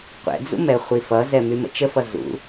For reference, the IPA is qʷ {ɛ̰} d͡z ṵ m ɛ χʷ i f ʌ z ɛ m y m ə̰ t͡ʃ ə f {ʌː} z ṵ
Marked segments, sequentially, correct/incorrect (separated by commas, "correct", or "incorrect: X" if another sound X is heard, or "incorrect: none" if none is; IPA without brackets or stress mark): correct, incorrect: ʌ